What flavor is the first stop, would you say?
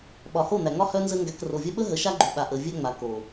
implosive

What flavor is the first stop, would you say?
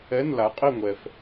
ejective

